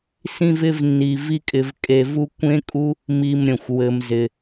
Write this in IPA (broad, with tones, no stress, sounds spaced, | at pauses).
s ĩ˦ v ɪ˦ v nː i˧ v i˦ kʼ ɪ˧ v kʼ e˧ v u˦ kʷ ẽ˦ kʼ u˦ | m i˧ m ɾʲ ə̃˨ xʷ w ɘ˧ m z ɪ˧